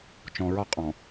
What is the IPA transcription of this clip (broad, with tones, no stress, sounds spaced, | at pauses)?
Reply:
t͡ʃ ɔ̃˨ ɹ ɒ˦ qʼ ɔ̃˨